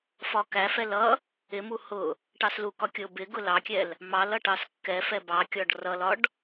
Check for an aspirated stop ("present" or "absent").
absent